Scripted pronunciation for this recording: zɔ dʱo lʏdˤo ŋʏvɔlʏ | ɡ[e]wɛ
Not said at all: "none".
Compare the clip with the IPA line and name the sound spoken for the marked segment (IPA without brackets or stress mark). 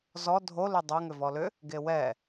e